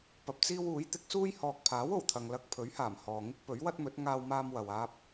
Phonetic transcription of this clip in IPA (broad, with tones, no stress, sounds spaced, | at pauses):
p ɐ˧ p̚ t͡s iː˥ w uː˨˥ j t̪ ɪ˨˥ k̚ s uː˥ j h ɔː˨ k̚ pʰ aː˨˥ w o˨˩ w t̪ʰ ɐ˨ ŋ l ɐ˧ k̚ pʰ ɵ˨˥ ɥ h aː˨˩ m h ɔː˨ ŋ ɪ˥ k̚ p ɵ˨˥ ɥ w ɐ˥ t̚ m ɵ˨˥ t̚ ŋ aː˧ w m aː˧ m w ɐ˨ w aː˧ p̚